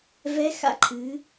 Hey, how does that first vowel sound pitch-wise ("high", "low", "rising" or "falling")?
rising